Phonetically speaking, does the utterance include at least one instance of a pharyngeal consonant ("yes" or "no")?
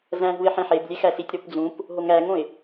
yes